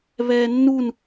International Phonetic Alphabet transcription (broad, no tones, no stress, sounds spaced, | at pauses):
β ɛː nː u n